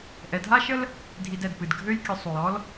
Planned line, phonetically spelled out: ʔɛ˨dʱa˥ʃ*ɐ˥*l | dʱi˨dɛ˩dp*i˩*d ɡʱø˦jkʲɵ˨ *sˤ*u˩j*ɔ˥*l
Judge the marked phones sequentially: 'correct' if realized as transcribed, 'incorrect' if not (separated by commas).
incorrect, incorrect, correct, correct